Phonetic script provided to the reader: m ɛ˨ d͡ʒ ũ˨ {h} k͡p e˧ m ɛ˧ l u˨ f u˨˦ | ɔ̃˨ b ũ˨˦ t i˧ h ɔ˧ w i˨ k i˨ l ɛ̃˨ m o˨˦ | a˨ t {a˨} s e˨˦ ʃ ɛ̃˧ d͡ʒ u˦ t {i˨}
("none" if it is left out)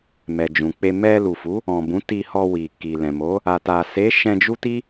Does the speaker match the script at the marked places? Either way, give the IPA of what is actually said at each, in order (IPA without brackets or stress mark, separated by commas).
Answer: none, a˨, i˦